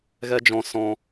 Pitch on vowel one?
high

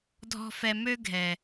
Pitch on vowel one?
high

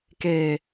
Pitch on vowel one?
low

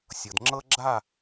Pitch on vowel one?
low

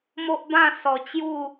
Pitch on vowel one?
high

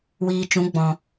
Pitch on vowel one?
low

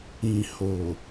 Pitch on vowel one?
low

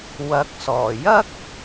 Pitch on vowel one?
rising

